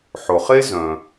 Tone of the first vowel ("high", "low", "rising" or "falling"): low